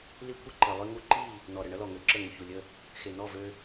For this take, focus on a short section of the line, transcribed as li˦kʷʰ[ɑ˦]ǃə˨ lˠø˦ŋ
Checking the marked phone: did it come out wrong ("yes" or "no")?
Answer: yes